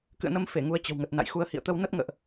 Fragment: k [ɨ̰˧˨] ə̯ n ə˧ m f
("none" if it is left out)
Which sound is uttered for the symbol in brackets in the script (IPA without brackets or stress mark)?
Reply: ɨ̰˧˨